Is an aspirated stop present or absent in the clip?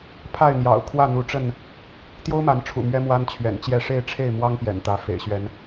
present